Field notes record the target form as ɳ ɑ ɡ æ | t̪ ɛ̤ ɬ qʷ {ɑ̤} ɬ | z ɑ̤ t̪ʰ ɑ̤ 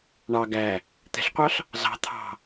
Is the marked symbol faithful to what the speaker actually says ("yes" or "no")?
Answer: no